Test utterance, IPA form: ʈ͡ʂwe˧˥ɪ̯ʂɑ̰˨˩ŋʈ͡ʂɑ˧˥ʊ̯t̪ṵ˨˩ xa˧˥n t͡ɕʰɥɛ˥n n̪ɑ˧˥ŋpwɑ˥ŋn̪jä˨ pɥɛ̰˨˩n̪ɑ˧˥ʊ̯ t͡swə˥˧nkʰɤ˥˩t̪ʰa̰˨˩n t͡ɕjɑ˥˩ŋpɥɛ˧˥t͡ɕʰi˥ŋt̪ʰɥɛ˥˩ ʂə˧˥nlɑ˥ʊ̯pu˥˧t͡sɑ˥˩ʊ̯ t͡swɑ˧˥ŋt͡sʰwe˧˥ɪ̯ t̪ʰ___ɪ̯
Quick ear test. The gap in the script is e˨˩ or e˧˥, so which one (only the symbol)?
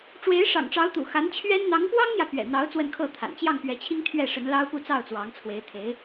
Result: e˧˥